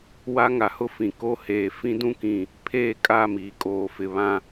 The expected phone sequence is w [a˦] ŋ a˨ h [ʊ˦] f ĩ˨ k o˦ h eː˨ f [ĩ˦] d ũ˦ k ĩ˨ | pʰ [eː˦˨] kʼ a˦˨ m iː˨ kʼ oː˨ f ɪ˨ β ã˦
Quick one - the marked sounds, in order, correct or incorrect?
correct, correct, correct, correct

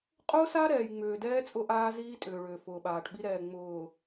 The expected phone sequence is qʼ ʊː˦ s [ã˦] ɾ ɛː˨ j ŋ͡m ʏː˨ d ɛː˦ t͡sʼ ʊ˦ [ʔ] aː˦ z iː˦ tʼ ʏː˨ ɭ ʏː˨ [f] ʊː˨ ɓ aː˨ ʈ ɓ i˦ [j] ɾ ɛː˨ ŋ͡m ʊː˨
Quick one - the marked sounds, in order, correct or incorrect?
incorrect, correct, correct, incorrect

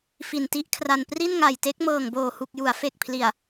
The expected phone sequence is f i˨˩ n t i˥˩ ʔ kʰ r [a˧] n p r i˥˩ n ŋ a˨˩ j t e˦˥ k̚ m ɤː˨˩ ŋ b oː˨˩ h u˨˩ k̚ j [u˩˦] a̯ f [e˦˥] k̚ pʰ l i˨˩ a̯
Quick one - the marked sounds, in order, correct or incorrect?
correct, correct, incorrect

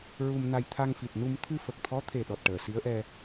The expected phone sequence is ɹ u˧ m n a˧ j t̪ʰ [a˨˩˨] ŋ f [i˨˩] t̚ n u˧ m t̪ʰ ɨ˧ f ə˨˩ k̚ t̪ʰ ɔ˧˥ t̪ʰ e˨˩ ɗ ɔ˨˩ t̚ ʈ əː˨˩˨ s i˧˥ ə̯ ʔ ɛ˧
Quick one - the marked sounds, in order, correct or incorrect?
incorrect, correct

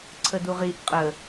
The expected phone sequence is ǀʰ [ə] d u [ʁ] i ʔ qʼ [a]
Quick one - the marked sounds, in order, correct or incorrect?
correct, correct, incorrect

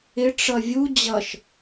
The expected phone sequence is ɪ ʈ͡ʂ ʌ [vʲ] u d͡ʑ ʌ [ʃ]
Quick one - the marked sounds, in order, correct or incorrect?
correct, correct

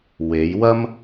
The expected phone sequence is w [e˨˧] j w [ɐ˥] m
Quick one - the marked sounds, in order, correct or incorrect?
correct, correct

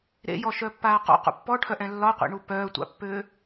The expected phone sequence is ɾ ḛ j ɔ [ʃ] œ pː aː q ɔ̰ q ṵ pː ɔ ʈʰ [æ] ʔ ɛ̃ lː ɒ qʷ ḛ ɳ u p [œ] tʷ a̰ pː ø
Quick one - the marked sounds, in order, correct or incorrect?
correct, incorrect, incorrect

